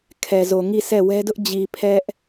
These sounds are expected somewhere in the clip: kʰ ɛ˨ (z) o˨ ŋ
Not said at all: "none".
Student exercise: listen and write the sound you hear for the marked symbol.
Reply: z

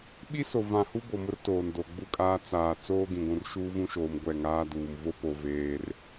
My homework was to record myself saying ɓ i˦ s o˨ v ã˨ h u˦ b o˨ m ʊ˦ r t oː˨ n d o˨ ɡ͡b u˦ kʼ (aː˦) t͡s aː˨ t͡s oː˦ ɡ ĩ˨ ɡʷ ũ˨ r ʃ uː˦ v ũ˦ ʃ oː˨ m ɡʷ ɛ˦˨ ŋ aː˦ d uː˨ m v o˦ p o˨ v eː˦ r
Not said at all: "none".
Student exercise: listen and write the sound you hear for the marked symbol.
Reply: aː˦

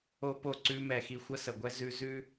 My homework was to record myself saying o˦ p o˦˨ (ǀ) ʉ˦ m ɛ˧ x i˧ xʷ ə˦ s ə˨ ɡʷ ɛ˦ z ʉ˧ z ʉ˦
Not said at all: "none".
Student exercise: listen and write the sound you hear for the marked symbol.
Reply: ǀ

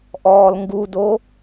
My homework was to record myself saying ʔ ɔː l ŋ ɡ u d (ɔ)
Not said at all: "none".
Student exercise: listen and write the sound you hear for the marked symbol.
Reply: o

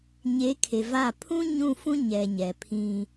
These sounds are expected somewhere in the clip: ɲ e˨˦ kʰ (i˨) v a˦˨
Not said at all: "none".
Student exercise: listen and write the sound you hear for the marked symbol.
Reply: e˨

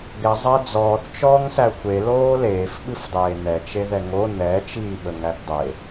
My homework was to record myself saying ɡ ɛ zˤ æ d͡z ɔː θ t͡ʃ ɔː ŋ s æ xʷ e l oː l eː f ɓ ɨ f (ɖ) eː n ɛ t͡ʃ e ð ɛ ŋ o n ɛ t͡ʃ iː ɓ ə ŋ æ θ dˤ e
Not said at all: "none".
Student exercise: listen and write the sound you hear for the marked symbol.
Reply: dˤ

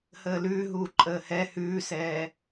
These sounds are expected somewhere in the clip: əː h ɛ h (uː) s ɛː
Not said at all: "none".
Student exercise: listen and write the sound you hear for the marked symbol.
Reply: ʉː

